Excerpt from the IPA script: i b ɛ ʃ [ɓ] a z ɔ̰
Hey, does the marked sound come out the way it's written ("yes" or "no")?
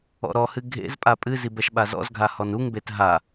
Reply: yes